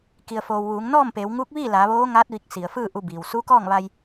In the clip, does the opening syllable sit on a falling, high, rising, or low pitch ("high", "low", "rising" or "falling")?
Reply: low